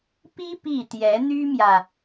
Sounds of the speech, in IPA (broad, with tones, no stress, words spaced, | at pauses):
pi˥ pi˥˩t̪jɛ˧˥ n̪y˥mjä˨